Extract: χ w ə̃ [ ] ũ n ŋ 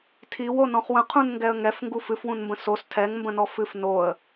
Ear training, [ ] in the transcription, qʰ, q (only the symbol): qʰ